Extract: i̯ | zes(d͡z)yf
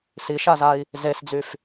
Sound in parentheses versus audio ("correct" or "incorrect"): correct